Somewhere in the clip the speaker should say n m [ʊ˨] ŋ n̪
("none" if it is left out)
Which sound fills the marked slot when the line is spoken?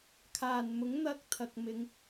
ʊ˨˥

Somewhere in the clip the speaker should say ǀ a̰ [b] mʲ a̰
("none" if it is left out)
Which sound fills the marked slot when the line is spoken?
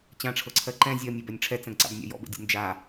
b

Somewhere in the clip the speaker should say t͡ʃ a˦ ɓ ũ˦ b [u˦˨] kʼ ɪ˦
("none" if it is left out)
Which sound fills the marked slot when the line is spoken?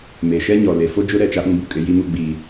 u˨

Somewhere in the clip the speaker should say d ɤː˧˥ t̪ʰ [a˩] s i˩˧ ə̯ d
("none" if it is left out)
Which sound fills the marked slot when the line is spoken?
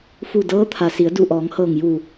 a˩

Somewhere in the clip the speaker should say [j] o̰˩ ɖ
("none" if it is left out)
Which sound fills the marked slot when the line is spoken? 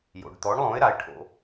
j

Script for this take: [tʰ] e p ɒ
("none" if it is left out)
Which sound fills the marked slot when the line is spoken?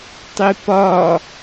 tˤ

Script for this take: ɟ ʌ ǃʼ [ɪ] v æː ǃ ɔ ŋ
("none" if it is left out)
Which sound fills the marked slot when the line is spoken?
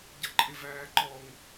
ɪ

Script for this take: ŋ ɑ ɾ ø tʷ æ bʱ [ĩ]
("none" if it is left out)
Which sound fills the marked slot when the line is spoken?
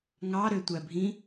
ĩ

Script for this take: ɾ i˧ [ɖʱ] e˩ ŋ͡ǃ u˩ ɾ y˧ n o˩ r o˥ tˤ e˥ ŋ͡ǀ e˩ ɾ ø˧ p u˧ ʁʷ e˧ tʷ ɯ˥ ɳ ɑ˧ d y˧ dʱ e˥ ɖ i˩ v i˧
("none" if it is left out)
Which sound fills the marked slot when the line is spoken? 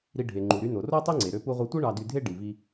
ɖʱ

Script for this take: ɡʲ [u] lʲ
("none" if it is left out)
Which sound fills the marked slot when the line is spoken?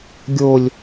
o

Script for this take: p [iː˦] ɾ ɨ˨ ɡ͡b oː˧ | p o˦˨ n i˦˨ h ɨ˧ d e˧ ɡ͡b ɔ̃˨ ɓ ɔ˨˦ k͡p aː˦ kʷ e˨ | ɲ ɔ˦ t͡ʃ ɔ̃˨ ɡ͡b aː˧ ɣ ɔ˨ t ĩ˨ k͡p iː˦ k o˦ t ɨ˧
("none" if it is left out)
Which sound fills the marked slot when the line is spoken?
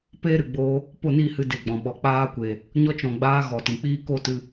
eː˦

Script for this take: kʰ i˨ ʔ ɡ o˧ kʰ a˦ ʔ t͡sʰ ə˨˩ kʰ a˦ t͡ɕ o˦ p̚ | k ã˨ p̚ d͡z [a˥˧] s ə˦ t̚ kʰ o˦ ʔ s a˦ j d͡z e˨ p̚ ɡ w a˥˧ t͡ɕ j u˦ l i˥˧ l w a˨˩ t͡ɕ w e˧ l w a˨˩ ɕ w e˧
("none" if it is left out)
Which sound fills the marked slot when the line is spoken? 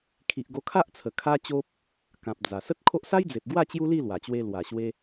a˨˩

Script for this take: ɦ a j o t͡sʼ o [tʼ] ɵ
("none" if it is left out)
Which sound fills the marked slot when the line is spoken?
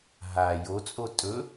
tʼ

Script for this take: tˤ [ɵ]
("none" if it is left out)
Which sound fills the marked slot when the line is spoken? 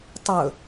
ɵ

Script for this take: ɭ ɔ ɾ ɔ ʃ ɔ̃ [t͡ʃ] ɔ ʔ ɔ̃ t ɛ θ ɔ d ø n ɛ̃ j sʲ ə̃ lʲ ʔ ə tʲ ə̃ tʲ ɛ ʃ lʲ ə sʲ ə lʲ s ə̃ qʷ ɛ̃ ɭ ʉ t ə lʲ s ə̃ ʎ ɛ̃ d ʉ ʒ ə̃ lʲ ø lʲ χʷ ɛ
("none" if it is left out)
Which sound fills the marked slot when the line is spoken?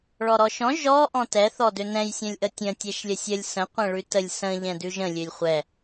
ʒ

